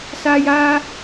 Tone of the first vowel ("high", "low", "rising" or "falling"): high